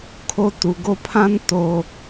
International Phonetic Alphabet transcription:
kʰo˦tu˨ɡo˦ pʰã˦nto˨

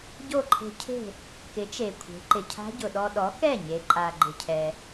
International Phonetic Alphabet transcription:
ɟo˥˩ǃʰe̤˧cʰe̤˥˩ | kɪ˩˥t͡ʃe˩kʷʰe̤˩˧ ǃɪ˩cʰa̤˦˥ɟʊ˩ɗɔ˧ ɗɔ˩˥kɛ˥˩ ɲe˩˥ ǃʼa˩ɡ͡ǃɪ˩cʰɛ˩

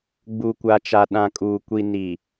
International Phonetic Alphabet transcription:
ɡ͡bu˨kʷa˨t͡ʃa˨ ɗã˨kʼuː˨ kʷi˨ni˨

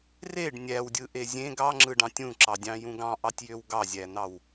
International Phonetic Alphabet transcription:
reɖ nʲæwdʲɯʔe zʲẽɡ ɑŋ͡ǁɯɖɑ̃tʲ ũǁɑdʲɑ̃jũɡ ɑ̃ʔɑtʲjøw ɡɑzʲænɑw

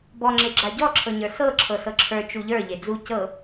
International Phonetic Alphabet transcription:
bɔŋ͡ǁe ɡ͡ǁaɟɔǁʰɤɲə˞ sɤǁʰɤ sɤǁʰə˞ t͡ʃuʎə˞ ʎed͡zu cɤ

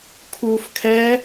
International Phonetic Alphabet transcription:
kʰuːfkʰɛ

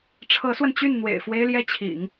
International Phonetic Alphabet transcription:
ʈ͡ʂʰɤ˧˥swə˧nt͡ɕy˥˩n n̪wḛ˨˩ɪ̯fwe˥ɪ̯ljɛ˥˩t͡ɕʰḭ˨˩˦ŋ

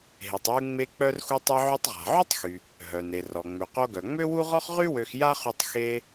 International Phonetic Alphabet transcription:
ɦe˩tˤwy˧ ŋ͡me˧k͡pœ˧rxu˧tˤi˧ ʕy˧tˤʁa̤˩ʕu˥tˤ xy˩ | ɦœ˩ne˩rɔ˩ ŋ͡mø˩qo˧ɡœ˩ ŋ͡mø˥wu˥ʁɔ˥χ ʁy˥wø˧x ja˥χy˧tˤ xe˧

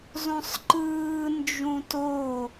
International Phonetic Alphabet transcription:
zõsˤǃɯː nd͡ʒũto

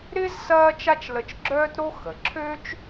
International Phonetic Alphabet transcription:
ɾɪː˥z sɐː˥t͡ʃa˥t͡ʃ lə˧t͡ʃɡ͡ǁœː˥tɾo˥ xə˩ǁʰø˥t͡ʃ

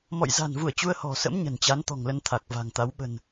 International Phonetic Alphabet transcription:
mɔ̰˧˨jza̤˨˩nvu˧˩ə̯ t͡ɕu˧ə̯hɔ̤˨˩sə̰˧˥m ɲə̤˨˩n t͡ɕa˨˦nt̪ɔ̤˨˩ŋ lə˧nt̪ʰa˨˩k̚va̤˨˩ŋt̪a˨˦w ɓə̤˨˩n

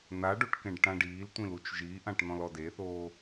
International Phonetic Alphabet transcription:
n̪aɖoʈkẽɖ ʈãɖiːltʷĩlut͡ʃ ʒiːʔãʈn̪ɔ̃l ɔdeθoː

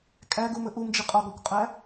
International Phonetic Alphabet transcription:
kʼæɡu məʔumd͡ʒe qʼɒɡɒkʷqʼæ

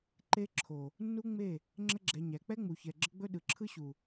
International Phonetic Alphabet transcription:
ǃe˧ǁʰo˨ | nːu˦ ŋ͡me˦˨ | ŋ͡ǁə˧ɡ͡ǁɛ˨ ɲæ˨k͡pɛ˦ŋ͡mu˨çɛ˨ ɡ͡ǁə˦ɡ͡bɵ˦ɗɯ˨ ǁʰɯ˦ɕu˨

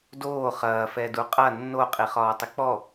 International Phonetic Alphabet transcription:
doː χɐːfɛdu qʼɐ nːoqʼiχɒːtˤɪ k͡pɔ

